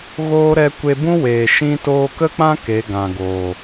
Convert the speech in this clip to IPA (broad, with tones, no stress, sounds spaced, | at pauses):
ɣ oː˦ ɾ ɛ˧ kʷ e˧ b ũ˦ w eː˨ ʃ ĩ˧ t oː˧ k ə˦ k͡p ã˦ k e˨˦ ɡ ã˨ ɡ oː˨